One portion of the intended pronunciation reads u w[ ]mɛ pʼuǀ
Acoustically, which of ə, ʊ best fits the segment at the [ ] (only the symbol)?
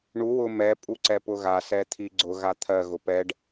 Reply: ʊ